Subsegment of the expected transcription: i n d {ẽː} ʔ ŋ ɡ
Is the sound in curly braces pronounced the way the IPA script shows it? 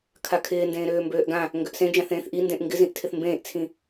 no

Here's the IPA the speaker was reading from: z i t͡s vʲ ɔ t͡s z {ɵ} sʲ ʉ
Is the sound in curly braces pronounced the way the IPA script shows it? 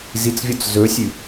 yes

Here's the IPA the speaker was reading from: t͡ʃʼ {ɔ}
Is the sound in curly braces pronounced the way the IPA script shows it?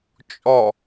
yes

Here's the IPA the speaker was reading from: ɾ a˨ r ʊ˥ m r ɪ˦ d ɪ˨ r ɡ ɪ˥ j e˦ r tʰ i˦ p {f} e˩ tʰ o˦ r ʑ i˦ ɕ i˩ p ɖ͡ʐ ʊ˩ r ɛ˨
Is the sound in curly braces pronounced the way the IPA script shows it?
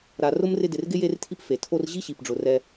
yes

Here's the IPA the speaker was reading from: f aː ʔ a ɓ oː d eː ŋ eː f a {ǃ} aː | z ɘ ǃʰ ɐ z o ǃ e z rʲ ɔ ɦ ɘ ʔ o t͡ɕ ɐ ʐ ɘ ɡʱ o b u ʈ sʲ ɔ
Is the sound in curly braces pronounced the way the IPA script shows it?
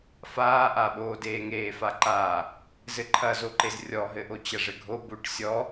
yes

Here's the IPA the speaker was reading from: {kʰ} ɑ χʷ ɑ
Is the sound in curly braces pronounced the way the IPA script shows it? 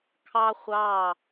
yes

